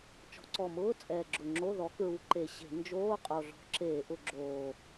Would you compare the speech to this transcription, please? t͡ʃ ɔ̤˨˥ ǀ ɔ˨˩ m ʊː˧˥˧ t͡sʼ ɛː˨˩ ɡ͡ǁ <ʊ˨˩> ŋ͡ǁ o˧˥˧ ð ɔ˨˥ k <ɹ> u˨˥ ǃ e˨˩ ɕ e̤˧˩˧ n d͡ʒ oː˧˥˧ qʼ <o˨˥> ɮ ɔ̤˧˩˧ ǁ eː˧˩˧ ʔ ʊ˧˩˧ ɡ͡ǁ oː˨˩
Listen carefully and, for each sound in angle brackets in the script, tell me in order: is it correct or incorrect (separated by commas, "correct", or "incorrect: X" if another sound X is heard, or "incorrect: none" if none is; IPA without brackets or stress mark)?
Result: correct, correct, incorrect: o˨˩